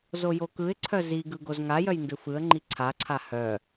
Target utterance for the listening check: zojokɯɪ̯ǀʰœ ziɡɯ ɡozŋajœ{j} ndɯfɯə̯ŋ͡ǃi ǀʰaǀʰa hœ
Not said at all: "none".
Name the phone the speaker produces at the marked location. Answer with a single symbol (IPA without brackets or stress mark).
j